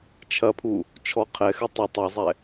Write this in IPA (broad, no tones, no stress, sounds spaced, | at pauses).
t͡ʃʰ ɐ pʰ u | t͡ʃʰ ɔ qʰ ɛ x ɨ tˤ ɐ tˤ ɐ zˤ ɛ